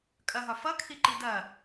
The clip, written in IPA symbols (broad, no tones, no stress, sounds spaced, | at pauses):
kʼ ɐ ɦ ɒ f ʌ kʰ i ǃ i d ɐ